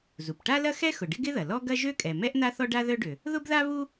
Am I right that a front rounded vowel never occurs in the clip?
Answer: no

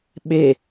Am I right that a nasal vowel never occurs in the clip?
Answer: yes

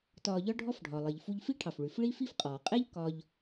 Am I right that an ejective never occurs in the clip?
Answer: no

